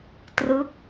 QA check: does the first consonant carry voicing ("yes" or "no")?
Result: no